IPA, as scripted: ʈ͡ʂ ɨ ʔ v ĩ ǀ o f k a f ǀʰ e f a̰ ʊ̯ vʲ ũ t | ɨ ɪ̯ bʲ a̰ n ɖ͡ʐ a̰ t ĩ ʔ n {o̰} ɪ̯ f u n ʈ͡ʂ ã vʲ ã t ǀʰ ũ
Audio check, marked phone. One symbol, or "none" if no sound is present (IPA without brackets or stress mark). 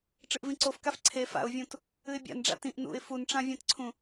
ṵ